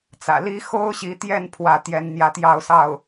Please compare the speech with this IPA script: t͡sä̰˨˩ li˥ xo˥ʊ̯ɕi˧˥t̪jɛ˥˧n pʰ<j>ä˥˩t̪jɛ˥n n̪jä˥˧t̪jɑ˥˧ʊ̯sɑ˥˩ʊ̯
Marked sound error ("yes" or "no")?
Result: yes